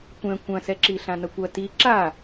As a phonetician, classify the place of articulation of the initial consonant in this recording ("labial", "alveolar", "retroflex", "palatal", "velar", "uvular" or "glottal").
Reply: velar